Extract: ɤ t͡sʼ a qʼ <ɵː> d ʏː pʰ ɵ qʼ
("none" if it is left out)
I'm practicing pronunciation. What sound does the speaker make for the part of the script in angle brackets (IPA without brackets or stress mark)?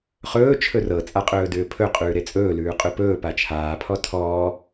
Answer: ɵː